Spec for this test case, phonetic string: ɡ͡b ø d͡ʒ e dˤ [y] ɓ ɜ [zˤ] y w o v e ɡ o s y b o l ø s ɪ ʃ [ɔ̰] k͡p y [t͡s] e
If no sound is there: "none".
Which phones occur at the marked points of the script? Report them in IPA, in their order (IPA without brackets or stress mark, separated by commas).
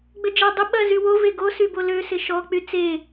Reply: ɪ, z, ɔ, t͡s